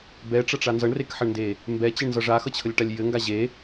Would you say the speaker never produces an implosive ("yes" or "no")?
yes